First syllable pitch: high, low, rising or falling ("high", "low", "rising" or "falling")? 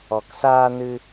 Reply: low